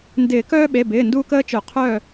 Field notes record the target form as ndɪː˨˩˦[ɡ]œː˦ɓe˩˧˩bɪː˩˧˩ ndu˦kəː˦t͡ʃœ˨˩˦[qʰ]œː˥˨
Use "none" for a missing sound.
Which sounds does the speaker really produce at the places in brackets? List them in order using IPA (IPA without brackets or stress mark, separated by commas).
k, qʰ